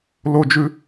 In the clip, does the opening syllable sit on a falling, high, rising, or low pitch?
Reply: high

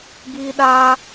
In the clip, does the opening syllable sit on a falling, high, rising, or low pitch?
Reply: high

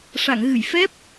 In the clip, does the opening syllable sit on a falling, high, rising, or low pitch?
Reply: low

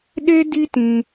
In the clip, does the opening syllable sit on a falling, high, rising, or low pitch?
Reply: high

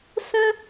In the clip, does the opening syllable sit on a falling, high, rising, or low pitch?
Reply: high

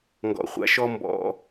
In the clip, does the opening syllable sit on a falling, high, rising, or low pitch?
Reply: low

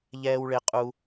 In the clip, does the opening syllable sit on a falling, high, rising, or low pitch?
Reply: high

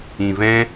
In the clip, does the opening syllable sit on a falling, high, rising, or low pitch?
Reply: low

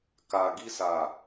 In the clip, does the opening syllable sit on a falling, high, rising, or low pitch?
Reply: low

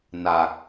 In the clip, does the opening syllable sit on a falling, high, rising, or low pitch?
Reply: low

